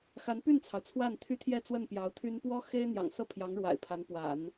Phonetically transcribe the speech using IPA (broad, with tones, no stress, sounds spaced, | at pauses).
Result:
x a˧˥ n p y˥˩ n t͡sʰ ɑ˩ ʊ̯ t͡sʰ w a˥˩ n t̪ʰ y˥ t̪ʰ j ɛ˥˧ t͡s w ə˥˩ n p j ɑ˧˥ ʊ̯ t̪ʰ y˥ n p w ɔ˥ x e˥ ɪ̯ n̪ j ɑ̰˨˩ ŋ s ɤ˥˩ pʰ j ɑ˧˥ ŋ ɻ w a̰˨˩ ɪ̯ pʰ a˧˥ n p w a̰˨˩˦ n